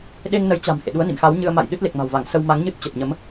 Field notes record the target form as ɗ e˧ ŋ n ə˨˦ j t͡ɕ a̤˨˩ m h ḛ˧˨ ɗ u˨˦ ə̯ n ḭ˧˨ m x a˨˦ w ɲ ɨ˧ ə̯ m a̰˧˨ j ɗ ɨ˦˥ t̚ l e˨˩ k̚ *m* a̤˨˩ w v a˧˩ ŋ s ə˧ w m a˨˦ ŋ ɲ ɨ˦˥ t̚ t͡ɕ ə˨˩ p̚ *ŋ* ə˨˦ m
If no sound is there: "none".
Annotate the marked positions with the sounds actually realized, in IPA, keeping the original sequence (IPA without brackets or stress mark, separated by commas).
m, ɲ